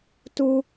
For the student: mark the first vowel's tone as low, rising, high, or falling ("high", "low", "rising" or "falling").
high